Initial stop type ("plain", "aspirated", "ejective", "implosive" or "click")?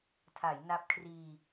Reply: aspirated